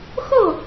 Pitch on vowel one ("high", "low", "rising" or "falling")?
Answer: falling